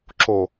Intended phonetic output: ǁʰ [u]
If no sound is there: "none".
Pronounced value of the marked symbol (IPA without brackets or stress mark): o